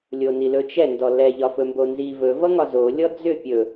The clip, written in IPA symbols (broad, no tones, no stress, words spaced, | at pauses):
lʲonilɵt͡ʃɛ ndɔlɛ ʎɒfɵmbonzi vɵ vʌŋɒzo lʲɔd͡zʏ pʲɵ